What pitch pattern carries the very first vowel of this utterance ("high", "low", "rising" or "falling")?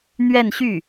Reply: falling